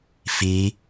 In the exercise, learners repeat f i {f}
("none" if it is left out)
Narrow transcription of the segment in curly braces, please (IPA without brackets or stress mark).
none